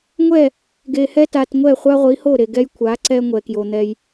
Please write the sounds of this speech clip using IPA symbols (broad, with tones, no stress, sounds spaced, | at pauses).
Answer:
ŋʷ ɛ˦˨ | ɡ e˨ h ɛ˦ t a˨ t ŋʷ ɛ˦˨ χʷ a˦ ʁʷ i˨˦ h o˦˨ ɾ e˨ ɡ ɛ˦ j kʷʰ a˨˦ ǀ ɛ˦ ŋʷ ɛ˨ k j o˨ n̪ ɛ˦ j